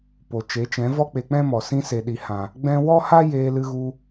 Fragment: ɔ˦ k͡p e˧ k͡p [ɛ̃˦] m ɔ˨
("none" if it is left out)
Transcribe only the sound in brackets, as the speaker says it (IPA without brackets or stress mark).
ɛ̃˦